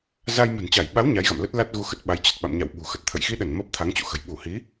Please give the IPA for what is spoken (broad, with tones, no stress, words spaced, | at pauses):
za˧jmə̤˨˩nt͡ɕa˧˩jɓa˨˦w ɲa˨˦jɣa̰˧˨mlə˦˥t̚la˦˥t̚ ɣu˧xə˦˥t̚ɓa˨˦j t͡ɕə˨˩t̚ɓa̰˧˨mɲa̰˧˨w ɓṳ˨˩xə˨˩t̚ t̪ʰə̰˧˨jxi˧ɗə˧˩n məː˦˥p̚t̪ʰa˨˦ŋt͡ɕṵ˧˨xə̤˨˩j ɓu˧˩hi˨˦